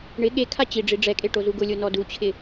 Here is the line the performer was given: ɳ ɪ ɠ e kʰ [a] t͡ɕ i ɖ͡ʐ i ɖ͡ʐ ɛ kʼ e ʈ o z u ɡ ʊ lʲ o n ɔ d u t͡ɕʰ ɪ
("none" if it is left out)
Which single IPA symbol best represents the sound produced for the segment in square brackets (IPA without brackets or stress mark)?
a